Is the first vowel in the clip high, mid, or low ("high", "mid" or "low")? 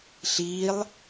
high